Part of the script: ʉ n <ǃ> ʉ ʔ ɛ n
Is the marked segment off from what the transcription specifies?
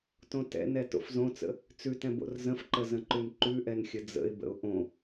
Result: no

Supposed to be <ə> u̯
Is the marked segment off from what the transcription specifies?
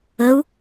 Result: no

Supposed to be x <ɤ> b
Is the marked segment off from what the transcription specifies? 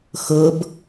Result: no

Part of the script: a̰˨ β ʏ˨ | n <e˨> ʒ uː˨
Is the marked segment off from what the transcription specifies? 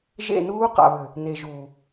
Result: no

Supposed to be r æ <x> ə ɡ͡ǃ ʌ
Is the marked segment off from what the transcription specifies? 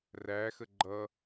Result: no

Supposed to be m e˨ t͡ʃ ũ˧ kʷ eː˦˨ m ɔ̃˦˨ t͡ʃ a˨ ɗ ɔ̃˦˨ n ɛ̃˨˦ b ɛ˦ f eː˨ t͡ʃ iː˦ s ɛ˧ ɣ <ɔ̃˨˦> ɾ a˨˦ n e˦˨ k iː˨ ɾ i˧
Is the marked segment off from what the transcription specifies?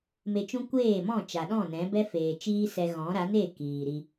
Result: no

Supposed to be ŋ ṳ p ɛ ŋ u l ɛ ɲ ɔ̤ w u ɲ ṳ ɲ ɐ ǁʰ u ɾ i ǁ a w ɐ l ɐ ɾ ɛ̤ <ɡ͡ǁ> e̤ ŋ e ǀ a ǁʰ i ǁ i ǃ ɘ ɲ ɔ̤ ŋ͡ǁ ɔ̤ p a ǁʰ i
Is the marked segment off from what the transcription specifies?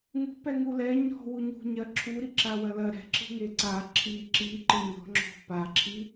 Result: yes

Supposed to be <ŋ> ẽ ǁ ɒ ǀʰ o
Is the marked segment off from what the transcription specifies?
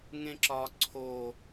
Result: no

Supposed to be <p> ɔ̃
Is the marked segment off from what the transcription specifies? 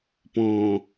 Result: no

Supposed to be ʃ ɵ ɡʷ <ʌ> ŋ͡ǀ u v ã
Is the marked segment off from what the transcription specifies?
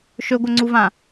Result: no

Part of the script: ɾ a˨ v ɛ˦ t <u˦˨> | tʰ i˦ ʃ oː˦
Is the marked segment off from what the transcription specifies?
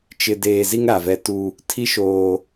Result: yes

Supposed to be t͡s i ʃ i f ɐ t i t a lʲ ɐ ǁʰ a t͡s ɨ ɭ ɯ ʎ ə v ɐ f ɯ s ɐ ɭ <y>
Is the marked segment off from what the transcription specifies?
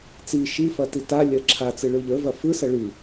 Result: no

